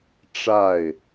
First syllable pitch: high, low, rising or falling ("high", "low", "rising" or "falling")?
falling